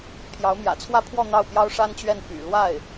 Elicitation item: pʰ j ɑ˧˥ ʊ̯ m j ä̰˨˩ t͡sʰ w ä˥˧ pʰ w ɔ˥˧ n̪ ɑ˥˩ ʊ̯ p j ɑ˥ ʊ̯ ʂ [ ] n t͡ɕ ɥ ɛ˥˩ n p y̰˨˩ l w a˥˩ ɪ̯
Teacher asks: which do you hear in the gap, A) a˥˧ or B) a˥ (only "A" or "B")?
B